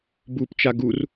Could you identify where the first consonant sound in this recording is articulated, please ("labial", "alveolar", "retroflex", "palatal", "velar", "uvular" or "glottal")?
labial